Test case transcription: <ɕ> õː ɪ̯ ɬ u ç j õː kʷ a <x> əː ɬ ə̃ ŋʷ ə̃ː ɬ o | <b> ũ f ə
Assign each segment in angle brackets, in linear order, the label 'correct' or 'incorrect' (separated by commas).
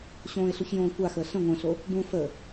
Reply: correct, correct, correct